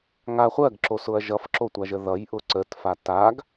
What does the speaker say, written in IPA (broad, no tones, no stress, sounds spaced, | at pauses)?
ŋ a χʷ ɜ ɡ ǁ o s ʊ ɐ̯ ʒ ʌ f ǁ o tʷ a ʒ ə ð ʌ j ʔ ʊ ǀ ə t f a t a ɡ